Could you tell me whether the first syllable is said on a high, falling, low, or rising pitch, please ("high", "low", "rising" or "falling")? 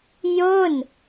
falling